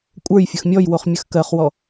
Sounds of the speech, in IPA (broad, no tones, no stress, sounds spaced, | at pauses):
kʷʼ ə˞ j fʲ ə x mʲ ɔ j w o χ mʲ ə x k ɜ χ w ɔ